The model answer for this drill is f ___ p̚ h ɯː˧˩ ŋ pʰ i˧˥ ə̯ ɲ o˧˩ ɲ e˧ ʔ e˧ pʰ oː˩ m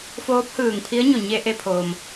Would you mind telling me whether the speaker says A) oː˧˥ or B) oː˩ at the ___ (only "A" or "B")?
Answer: A